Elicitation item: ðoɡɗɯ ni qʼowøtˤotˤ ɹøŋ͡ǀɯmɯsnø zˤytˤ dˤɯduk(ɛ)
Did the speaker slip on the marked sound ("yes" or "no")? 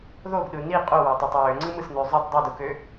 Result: yes